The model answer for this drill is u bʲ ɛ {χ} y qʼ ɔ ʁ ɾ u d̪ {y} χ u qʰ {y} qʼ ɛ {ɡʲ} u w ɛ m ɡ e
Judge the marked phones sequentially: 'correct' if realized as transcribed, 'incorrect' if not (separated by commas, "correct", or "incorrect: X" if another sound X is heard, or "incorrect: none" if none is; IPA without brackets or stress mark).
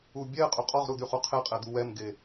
incorrect: qʼ, correct, incorrect: e, incorrect: d̪